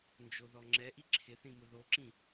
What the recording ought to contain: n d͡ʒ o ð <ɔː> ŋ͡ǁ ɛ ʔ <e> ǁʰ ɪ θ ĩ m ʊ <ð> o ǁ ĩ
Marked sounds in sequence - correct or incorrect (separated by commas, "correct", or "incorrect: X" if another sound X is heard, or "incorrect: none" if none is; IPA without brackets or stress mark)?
incorrect: ɔ, incorrect: i, correct